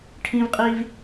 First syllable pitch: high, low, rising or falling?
high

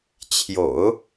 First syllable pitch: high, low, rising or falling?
low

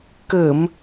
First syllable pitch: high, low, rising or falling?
low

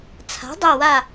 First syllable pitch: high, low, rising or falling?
rising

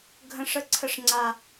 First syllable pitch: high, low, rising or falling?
high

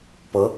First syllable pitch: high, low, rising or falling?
rising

